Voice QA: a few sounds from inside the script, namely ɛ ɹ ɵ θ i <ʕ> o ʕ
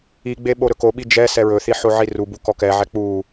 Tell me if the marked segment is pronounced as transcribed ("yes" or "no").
no